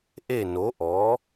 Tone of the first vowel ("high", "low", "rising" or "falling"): falling